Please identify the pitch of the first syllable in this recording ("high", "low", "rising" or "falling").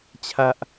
low